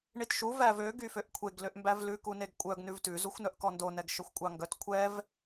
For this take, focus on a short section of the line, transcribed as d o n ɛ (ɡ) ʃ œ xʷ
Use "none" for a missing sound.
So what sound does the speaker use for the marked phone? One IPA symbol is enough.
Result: ɡ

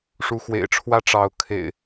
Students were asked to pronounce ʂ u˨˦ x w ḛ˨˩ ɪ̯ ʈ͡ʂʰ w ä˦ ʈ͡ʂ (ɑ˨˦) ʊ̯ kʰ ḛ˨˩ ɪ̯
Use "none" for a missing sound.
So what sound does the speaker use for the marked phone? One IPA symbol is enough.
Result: ɑ˨˦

